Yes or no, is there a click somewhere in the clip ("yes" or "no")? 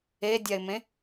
no